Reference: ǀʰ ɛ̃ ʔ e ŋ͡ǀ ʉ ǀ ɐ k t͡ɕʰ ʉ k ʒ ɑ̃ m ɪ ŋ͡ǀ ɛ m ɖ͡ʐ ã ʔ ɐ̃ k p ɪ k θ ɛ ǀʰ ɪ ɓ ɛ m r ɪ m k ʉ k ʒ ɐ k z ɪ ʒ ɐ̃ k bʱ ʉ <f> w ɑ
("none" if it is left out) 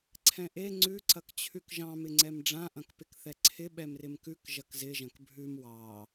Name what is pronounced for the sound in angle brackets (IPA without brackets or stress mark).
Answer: m